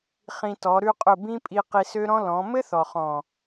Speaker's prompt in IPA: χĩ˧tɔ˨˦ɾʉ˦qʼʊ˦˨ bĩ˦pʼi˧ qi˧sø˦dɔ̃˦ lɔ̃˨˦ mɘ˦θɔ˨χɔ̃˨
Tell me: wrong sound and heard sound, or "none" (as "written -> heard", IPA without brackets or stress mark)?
d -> ɾ